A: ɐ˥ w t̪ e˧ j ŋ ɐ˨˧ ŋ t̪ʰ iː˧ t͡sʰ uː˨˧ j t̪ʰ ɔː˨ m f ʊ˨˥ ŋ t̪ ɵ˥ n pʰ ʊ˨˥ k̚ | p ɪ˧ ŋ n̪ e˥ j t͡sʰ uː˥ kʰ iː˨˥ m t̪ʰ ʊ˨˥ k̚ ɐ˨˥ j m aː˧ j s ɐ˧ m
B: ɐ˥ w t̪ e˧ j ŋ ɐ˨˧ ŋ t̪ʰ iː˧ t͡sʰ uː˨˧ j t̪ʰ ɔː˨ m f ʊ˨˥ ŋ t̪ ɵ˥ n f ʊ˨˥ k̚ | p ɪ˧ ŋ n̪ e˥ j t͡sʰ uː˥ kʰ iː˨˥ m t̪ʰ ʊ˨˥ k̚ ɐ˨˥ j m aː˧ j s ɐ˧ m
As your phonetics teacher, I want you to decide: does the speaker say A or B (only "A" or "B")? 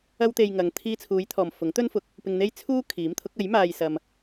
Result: B